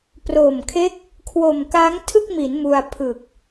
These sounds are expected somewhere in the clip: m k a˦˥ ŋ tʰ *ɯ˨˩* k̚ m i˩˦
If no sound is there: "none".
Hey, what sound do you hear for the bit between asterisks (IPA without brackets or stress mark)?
ɯ˥˩